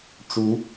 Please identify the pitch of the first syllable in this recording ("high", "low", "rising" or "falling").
rising